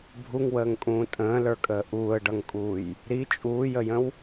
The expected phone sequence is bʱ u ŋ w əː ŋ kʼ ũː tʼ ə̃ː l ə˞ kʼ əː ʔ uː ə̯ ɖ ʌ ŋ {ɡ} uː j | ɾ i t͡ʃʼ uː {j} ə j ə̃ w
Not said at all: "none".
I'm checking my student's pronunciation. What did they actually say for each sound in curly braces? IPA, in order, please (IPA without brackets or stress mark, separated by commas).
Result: kʼ, j